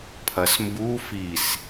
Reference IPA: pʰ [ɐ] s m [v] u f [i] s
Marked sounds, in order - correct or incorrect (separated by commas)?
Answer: correct, incorrect, correct